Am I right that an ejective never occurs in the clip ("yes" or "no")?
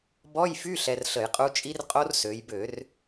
no